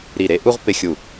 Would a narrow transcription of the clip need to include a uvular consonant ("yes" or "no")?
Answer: yes